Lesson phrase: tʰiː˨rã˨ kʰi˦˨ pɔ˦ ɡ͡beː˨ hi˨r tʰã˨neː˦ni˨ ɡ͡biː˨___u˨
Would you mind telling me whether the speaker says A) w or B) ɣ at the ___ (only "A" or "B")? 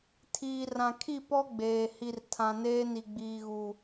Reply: B